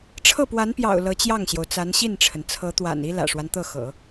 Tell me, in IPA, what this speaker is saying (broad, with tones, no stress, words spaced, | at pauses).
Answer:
ʈ͡ʂʰɤ˥˩pwa˧˥npjɑ̰˨˩ʊ̯ lɤ˧˥t͡ɕjɑ˥˩ŋɕjo˩ʊ̯t͡sa˧˥n ɕi˥˩nʈ͡ʂʰə˩n t͡sʰɤ˧˥t̪wa̰˨˩ni˥ lä̰˨˩ʂwa˦nt̪ɤ˥˩xɤ̰˨˩˦